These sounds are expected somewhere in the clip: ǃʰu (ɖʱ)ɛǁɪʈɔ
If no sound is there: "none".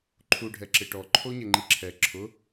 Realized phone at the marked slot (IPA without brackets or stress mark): ɖʱ